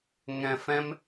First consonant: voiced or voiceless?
voiced